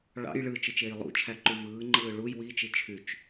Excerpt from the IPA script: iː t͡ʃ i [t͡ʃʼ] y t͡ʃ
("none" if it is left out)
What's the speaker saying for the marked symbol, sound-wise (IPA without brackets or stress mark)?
t͡ʃʰ